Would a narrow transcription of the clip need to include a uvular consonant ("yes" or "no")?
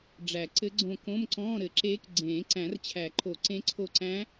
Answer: no